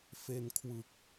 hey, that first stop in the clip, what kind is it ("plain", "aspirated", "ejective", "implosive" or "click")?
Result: aspirated